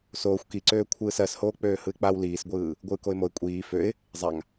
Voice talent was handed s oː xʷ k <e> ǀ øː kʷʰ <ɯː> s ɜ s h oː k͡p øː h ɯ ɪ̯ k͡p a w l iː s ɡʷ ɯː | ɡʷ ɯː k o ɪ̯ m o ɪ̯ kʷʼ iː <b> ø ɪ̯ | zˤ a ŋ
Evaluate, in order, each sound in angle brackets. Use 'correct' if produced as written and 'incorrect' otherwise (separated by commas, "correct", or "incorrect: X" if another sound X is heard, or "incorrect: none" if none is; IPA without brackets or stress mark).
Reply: incorrect: i, correct, incorrect: f